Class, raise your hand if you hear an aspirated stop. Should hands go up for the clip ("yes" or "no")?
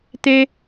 no